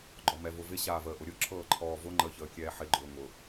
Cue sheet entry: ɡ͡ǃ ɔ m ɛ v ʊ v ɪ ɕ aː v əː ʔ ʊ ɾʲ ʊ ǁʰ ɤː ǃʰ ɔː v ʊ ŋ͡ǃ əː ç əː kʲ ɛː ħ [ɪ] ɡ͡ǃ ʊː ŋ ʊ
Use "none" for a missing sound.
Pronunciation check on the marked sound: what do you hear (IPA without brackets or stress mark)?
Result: ɪ